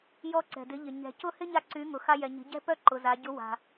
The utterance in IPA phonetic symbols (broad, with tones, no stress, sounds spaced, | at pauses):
j ɔ˧ ǀ ɛ̤˩ d ɪ˩˧ ʎ ɪ˩ ɲ ɛ̤˩ c ʊ˧ h ɪ˥ ɲ a˧ ǀ y˩˧ ŋ ʊ˩ x a˧ j ɛ˩ ɲ i̤˩˧ ɟ ɛ̤˥ p œ˥ ǃ ʊ˩ z a˩˧ ɟ ʊ˧˥ w a̤˩